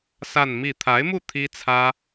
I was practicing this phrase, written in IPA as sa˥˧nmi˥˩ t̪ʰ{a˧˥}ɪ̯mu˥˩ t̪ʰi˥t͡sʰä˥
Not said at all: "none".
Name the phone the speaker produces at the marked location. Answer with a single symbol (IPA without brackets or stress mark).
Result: a˧˥